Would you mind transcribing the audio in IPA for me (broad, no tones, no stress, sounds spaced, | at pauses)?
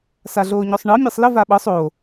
s a ɮ oː ɲ ɔ sˤ ɳ ɤ mʲ ɑ sˤ l ə v a ɓ ɤ sˤ o